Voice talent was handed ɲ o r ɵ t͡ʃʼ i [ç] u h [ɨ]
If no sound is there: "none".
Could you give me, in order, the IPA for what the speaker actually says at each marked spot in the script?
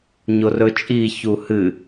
ç, ɨ

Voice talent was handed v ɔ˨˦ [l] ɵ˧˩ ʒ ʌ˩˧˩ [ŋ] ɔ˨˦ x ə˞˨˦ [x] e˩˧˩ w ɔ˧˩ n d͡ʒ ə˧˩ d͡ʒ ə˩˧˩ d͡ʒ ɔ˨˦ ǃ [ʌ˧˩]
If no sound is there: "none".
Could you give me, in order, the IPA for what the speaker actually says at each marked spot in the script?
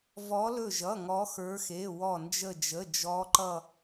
l, ŋ, x, ʌ˧˩

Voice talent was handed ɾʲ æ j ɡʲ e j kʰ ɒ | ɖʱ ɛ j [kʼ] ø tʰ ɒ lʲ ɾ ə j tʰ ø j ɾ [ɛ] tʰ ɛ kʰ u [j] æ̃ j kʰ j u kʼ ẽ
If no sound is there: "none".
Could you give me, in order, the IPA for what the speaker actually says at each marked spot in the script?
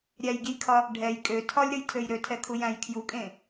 kʼ, ø, j

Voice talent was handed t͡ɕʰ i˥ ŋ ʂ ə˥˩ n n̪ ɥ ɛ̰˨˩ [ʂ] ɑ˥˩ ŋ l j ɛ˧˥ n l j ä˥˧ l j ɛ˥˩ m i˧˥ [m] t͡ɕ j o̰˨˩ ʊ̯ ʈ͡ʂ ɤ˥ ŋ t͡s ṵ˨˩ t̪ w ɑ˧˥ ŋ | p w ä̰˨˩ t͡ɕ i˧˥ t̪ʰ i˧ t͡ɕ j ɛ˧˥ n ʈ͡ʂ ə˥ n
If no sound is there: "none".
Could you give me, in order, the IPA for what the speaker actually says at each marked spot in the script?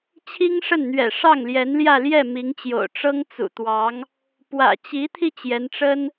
ʂ, ŋ

